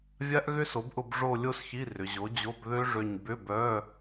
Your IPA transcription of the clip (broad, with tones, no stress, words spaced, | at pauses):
vʲa˦˥ʔɣʏ˦˥so˩˥bʔʊ˦˨b ʐo˦˨ lʲo˦˥sçi˧˥˧rʏ˩˧ ʑo˩˥d͡ʑo˧˥˧b ðø˦˥ʐø˦˨ɲ bʏ˧˥˧bœ˧˥˧